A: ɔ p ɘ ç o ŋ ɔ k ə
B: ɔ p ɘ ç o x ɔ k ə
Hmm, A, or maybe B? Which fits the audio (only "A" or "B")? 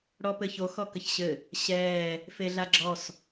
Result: B